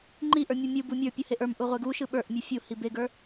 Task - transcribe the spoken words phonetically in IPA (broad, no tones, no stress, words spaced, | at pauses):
ŋ͡ǃiʔə˞ mʲumʲɯbu mʲə˞pʲɯ heʔə˞mʔu ʁʷeɡuʃɯ ɓə˞ʔmʲɯ fʲu hibeɡə˞